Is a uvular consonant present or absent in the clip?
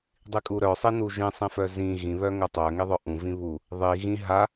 absent